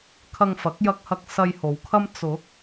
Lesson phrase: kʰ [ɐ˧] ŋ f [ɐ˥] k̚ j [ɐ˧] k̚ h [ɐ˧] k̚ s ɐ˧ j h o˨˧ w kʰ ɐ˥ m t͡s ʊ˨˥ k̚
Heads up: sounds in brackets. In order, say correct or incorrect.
correct, incorrect: ɐ˨˥, correct, correct

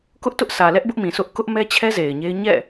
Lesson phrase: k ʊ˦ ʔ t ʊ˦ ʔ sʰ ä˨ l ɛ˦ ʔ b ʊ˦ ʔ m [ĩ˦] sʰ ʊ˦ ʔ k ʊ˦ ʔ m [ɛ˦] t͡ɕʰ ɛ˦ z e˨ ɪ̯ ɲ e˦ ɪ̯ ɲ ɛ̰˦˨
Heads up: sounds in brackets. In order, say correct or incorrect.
incorrect: ĩ˨, correct

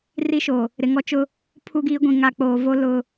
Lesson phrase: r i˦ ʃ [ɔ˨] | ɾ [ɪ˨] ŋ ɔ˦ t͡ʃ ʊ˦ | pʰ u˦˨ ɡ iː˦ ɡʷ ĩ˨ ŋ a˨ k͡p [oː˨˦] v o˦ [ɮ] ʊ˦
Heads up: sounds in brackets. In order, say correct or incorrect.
incorrect: o˨, correct, incorrect: oː˨, incorrect: l

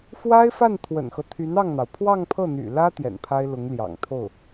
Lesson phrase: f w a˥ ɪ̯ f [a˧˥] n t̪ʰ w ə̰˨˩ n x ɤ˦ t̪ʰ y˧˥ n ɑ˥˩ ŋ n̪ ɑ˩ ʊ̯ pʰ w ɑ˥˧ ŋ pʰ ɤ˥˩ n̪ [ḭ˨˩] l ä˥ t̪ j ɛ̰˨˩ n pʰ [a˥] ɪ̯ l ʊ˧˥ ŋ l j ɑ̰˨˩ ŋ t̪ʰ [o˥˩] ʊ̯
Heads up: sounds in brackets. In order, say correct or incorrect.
incorrect: a˥˩, incorrect: y̰˨˩, correct, correct

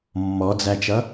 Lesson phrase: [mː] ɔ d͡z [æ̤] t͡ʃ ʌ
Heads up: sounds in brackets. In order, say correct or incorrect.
correct, incorrect: æ

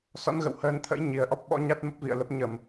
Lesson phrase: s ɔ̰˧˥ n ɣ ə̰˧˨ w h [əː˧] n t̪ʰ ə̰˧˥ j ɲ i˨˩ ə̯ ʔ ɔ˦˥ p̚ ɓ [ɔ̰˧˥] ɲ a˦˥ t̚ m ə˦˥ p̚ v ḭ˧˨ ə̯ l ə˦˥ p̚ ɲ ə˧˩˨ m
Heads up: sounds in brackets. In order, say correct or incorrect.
correct, correct

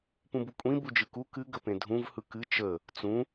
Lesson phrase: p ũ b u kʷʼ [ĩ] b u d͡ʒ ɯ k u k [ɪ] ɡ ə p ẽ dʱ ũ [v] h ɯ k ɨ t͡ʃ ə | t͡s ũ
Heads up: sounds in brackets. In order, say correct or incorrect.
correct, incorrect: ɨ, correct

